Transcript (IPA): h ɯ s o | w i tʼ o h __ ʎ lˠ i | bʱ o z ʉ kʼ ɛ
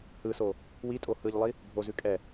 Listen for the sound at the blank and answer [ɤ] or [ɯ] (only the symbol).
ɯ